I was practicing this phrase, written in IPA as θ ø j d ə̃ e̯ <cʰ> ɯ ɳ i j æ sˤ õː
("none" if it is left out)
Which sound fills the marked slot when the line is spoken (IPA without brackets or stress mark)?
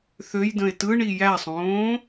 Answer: t